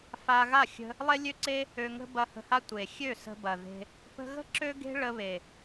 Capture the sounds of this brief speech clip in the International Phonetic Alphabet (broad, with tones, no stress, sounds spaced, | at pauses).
f a˧ ɣ a˦˨ xʲ ə̤˧ | lˠ e˦ lʲ ø˦ ǀ e˦ | ø˧ ŋ ə̤˦ b ɐ˧ h ə̤˧ h a˦ tʷ e˨ xʲ ø˦˨ s ə̤˧ b ɐ˨ ð e̤˧ | p ə̤˧ ɣ ə̤˦ ǁ ø˦ ɡ e̤˦ ɭ ə˧ β e˨